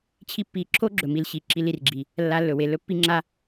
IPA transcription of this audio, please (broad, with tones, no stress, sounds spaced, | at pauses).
t͡ɕʰ i˦ pː i˧ ǁʰ o˦ ɡ͡ǁ ɵ˨ m i˨ l ɕ i˨ ǁ i˧ l i˨ r ɡ͡ǁ i˨ | lː a˧ lː ɵ˨ w e˨ l ɵ˦ pː i˦ ŋ͡ǁ a˦